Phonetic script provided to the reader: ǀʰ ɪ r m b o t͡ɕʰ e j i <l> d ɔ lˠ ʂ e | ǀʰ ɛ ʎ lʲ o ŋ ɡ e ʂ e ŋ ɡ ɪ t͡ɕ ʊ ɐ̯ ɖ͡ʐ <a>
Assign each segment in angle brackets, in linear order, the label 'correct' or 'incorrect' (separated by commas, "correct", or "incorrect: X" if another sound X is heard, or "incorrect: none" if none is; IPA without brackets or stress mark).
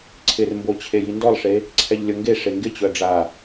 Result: incorrect: n, correct